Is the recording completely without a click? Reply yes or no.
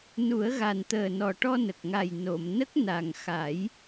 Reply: yes